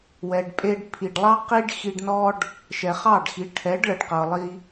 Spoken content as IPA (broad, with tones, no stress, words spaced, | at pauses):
wɛ˨ɖ pʼe˧ɖpʰi˨ɖlˠɑ˦ qi˦ɖxi˧ɖ nɔ˦ɖ | ʃɛ˨χɑ˦˨ɖxi˨˦ ʈʰɛ˨˦ɖ ɭə˨ɖqɤ˨lˠi˧